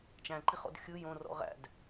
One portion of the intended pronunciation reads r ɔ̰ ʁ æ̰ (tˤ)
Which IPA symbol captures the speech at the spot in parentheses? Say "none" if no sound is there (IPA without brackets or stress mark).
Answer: d